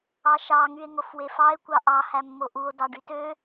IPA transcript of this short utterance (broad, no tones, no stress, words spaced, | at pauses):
ɑʃɑ ŋye̯ŋofwefɑe̯ kʷɑʔɑ hæmːoʔuo̯ dɑɖytø